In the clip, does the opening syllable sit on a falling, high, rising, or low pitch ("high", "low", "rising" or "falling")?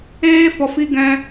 high